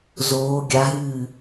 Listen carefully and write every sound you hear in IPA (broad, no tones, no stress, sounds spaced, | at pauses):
z oː ɡʲ a ɦ ɨː